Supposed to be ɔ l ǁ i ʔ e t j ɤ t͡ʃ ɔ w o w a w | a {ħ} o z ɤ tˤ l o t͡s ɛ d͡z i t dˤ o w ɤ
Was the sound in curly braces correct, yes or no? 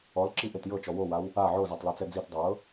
no